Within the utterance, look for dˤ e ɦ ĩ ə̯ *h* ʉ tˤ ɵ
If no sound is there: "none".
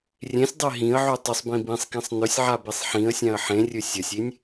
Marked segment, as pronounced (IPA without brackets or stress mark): ʕ